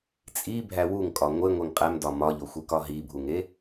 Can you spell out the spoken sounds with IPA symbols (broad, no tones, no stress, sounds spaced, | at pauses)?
t͡sʼ i bʱ æ w u ŋ kʼ ɒ ŋʷ e ŋʷ e ŋ qʼ æ m d ɒ m ɒ ʎ o xʷ e k ɒ ɦ i bʱ u ŋ e